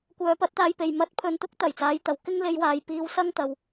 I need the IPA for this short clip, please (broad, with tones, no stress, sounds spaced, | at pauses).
kʷ œː˨˧ p ɐ˨˥ t̚ t̪ aː˧ j p e˨ j m ɐ˨˥ t̚ pʰ ɵ˨ n t̪ ʊ˥ k̚ t̪ ɐ˨˩ j t͡s aː˨˧ j t̪ ɐ˨˩ w k ɪ˥ ŋ l e˧ j w aː˨ j p iː˧ w s ɐ˥ ŋ t̪ ɐ˨ w